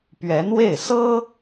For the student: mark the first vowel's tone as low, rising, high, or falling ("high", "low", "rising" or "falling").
rising